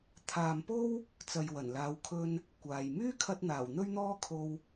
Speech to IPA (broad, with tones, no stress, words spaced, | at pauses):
t̪ʰaː˨mpo˥w | t͡sɐ˨jwɐ˨˩nlaː˨˧wkʰɵ˧n | kʷaː˨j myː˥kʰɐ˧t̚n̪aː˨˩w n̪ɵ˥ɥn̪ɔː˥kʰo˧w